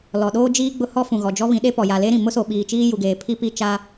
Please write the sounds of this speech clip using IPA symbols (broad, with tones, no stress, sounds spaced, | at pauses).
l ɔ˨ ɗ oː˦ d͡ʒ iː˦ ɡ͡b ʊ˦ h ɔ˦ f ũ˨ ɣ ɔ˨ d͡ʒ ɔ˦ β ĩ˨˦ ɗ e˦ p ɔ˨ j a˨ l e˦ ɾ ĩ˨ m ʊ˦ s o˨ ɓ iː˨ t͡ʃ iː˦ j u˨ ɡ eː˨ pʰ i˦ p i˦˨ t͡ʃ a˦